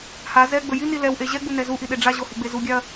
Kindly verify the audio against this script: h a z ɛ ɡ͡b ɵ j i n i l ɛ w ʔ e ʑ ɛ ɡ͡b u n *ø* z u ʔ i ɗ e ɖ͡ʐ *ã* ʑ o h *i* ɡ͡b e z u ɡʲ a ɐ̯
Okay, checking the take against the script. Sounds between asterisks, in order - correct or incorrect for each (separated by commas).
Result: incorrect, incorrect, correct